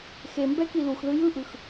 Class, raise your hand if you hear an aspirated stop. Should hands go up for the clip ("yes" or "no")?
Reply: no